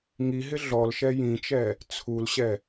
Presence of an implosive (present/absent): absent